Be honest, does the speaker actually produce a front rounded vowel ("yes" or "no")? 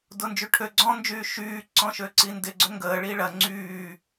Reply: yes